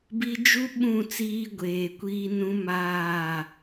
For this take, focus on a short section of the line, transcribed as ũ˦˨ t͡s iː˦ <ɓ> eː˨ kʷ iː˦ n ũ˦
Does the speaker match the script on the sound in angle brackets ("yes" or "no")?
no